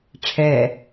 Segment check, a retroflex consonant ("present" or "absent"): present